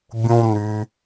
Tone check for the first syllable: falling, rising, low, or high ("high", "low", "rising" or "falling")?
high